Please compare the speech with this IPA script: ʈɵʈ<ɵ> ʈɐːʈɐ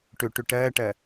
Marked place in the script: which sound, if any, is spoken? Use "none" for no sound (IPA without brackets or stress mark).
ɵ